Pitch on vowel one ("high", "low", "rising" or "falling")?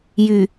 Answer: low